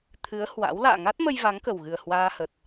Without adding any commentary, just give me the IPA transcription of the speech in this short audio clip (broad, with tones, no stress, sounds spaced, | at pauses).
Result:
t̪ʰ ɨ˨˦ ə̯ h w a̰˧˥ w l a̰ː˧˨ ŋ a˦˥ t̚ m ə˧ j v a˨˦ ŋ k ə˨˩ w ɣ ɨ˨˩ ə̯ h w aː˧ h ə˨˩ t̚